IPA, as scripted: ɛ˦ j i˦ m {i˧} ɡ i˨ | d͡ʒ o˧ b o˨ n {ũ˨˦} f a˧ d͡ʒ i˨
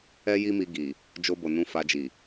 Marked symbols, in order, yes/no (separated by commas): yes, yes